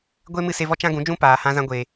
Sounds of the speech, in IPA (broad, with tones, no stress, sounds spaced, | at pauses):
ɡʷ e˦ m ɨ˦ s e˧ v ɔ˦ t͡ʃ ã˦ ɡ ũ˨˦ d͡ʒ ũ˦ p aː˨ h ã˧ z ã˧ ɡʷ e˨